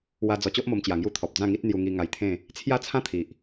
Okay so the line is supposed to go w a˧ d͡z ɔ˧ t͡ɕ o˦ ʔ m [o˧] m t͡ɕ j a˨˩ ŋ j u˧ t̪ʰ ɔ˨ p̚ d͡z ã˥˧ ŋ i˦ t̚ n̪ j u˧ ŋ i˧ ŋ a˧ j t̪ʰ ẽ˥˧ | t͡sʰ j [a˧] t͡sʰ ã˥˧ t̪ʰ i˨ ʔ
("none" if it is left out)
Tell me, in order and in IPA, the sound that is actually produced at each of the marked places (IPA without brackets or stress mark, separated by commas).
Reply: o˧, a˥˧